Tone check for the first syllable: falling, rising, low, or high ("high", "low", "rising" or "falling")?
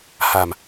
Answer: low